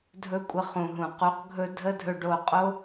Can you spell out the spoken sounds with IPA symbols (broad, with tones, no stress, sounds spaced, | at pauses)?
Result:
dʱ ɵ˦ kʷʼ ə˧ χ ũ˨ ɦ ũ˨ q u˨˦ q ɡʱ ɵ˦ dʱ ə˦ dʱ ɵ˧ ɖ o˧ qʼ o˦